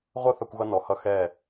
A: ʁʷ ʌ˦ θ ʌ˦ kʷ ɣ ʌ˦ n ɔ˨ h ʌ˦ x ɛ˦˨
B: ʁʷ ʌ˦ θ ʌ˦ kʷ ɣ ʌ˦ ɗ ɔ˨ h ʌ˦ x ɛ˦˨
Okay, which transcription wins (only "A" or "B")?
A